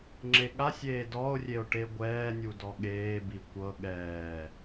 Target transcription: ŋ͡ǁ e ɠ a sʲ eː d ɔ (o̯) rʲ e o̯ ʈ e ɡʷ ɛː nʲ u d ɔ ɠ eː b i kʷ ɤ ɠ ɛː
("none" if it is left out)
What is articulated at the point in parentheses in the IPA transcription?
o̯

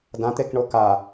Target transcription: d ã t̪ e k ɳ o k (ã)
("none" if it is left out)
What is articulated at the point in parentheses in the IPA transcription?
a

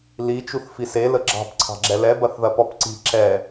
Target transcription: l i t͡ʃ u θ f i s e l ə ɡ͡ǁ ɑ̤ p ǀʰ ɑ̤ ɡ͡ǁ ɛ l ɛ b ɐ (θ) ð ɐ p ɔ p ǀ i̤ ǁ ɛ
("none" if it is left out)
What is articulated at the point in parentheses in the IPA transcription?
θ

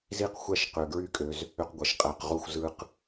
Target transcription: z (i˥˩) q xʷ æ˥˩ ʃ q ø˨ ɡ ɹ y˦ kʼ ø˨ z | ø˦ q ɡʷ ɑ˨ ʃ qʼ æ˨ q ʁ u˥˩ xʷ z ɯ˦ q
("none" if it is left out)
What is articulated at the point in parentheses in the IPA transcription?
i˥˩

